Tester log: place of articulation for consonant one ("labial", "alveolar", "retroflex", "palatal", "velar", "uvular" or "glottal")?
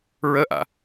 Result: alveolar